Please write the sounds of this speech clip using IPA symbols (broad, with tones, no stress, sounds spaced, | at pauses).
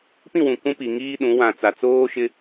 p ĩ˦˨ w ũ˨ k ũ˦ p i˨ ŋ iː˦ ɗ ũ˨˦ w ã˨ t͡s a˨ t͡s oː˦ ʃ ɪ˦